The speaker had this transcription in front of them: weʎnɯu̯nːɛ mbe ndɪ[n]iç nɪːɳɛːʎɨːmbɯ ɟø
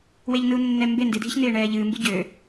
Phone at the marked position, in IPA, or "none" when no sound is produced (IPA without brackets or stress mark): dʱ